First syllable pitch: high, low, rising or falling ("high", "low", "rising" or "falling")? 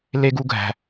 high